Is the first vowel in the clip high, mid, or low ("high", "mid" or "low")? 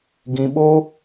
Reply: high